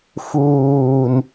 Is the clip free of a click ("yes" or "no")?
yes